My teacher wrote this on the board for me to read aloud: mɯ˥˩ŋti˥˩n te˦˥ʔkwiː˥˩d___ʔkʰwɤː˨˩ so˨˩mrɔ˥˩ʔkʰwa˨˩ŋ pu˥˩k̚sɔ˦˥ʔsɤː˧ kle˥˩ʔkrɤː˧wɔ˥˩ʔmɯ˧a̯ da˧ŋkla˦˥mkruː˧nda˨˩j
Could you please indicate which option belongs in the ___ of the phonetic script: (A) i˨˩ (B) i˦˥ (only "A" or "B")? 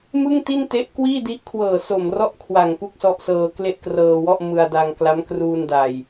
B